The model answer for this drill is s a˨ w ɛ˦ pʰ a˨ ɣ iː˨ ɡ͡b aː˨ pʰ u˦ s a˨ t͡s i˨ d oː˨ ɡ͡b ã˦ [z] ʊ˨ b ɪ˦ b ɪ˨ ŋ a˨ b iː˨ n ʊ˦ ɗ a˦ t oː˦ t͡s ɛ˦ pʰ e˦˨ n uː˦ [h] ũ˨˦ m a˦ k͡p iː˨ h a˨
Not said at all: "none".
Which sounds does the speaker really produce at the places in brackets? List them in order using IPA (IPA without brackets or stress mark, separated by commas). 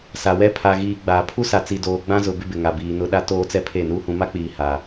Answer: z, h